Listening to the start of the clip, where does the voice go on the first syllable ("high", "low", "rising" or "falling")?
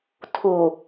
low